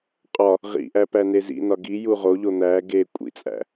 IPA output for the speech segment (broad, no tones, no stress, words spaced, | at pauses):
qʼɒ | ʁḭʔæpæne zḭnɒ ɡiju ʁoʎo n̪æ ɡe kʷʼḭt͡sʼæ̰